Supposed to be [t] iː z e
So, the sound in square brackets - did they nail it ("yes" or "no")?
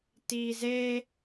yes